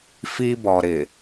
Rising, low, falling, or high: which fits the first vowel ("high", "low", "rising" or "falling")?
high